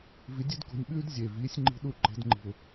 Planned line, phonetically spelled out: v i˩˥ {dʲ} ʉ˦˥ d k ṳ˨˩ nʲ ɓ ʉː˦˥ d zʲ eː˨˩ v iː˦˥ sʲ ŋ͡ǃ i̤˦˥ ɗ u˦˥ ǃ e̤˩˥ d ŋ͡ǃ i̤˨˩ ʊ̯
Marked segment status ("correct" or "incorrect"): correct